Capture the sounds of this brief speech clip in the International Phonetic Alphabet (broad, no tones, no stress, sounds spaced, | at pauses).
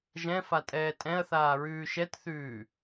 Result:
ʒ ɛ̃ f a tʼ ɛː tʼ ɛ̃ ɐ̯ θ aː ɹ ʉː ʃ ɛ t θ ʉː